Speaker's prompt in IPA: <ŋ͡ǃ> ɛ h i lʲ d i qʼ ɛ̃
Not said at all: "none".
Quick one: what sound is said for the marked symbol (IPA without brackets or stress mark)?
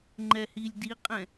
ŋ͡ǃ